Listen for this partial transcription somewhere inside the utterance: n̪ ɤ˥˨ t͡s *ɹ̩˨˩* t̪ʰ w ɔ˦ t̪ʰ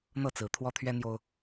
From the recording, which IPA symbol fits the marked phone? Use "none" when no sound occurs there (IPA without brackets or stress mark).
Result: ɹ̩˨˦